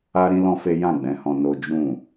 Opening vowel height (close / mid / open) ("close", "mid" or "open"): open